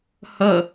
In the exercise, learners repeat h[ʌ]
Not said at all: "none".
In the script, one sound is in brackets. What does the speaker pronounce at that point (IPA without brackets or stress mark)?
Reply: ʌ